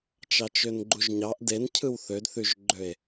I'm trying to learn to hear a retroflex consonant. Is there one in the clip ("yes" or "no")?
no